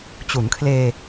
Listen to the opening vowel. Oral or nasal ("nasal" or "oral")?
oral